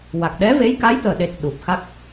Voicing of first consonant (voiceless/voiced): voiced